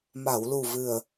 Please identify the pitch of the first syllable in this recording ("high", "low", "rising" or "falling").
low